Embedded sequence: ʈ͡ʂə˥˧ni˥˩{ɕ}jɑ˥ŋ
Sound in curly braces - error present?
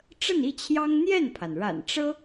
yes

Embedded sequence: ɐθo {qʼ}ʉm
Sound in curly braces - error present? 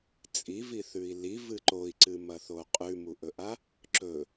no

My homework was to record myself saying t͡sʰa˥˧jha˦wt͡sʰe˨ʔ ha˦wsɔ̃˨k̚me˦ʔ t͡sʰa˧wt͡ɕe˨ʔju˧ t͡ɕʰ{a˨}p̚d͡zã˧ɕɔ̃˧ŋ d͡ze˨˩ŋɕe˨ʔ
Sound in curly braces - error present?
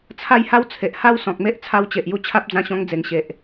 yes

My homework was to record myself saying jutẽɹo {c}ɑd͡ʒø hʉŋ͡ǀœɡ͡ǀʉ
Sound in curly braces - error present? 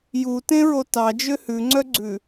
yes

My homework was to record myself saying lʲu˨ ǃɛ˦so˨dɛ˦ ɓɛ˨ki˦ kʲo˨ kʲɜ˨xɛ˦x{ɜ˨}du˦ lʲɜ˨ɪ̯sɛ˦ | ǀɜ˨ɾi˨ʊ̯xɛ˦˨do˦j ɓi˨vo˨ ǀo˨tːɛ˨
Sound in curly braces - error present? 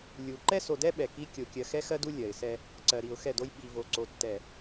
yes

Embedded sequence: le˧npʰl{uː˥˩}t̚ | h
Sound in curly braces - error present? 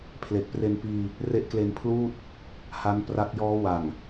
no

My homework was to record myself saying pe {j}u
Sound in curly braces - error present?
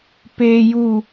no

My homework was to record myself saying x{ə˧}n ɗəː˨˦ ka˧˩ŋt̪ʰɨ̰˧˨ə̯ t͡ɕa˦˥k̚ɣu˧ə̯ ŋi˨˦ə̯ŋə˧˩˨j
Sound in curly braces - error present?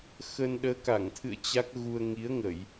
yes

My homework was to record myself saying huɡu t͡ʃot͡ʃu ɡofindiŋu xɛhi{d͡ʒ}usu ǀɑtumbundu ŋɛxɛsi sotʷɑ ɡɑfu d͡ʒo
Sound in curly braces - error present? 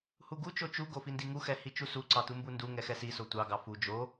yes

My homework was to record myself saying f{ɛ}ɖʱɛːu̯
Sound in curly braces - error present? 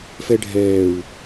no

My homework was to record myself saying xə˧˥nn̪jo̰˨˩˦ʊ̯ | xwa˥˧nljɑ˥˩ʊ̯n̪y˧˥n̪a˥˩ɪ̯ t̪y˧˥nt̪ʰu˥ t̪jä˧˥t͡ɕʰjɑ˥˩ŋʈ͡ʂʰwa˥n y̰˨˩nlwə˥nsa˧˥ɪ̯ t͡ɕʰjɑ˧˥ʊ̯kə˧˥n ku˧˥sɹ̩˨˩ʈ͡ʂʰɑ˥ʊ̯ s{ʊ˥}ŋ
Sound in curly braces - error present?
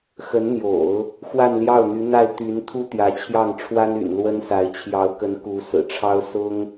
no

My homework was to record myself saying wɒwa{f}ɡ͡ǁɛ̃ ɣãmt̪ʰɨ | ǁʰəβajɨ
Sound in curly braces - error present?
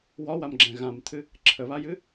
yes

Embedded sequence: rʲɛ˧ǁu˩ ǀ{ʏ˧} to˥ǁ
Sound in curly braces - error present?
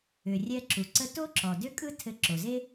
yes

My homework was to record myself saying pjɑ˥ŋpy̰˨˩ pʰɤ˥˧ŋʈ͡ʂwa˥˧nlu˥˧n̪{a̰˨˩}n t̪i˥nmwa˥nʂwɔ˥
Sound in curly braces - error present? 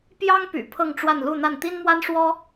yes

